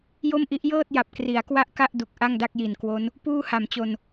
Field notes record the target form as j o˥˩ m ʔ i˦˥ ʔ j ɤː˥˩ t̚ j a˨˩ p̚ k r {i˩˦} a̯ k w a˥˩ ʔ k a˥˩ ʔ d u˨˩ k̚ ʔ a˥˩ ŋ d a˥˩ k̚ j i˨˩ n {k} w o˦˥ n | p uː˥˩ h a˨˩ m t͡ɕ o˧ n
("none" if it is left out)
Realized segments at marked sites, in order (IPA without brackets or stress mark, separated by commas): i˩˦, k